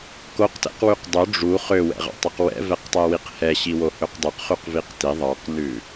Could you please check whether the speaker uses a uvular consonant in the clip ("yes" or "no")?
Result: yes